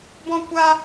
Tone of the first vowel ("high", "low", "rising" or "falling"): high